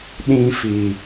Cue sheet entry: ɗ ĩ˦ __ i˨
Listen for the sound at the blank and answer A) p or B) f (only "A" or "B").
B